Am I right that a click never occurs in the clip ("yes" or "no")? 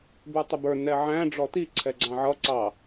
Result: no